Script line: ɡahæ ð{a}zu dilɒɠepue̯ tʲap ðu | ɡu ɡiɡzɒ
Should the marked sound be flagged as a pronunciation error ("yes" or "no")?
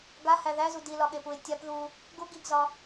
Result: yes